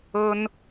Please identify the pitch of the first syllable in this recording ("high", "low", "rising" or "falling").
high